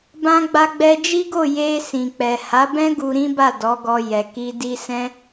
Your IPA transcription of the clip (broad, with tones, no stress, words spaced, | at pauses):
bã˧ɡ͡ba˧ ɡ͡bɛ˧d͡ʒi˦ɡo˦˨ je˧ sĩ˨k͡pɛ˨ ha˨˦bɛ̃˦ ɡu˧ɾĩ˦ba˦˨ dɔ˨˦ɡɔ˧ jɛ˨ki˧ di˧sɛ̃˦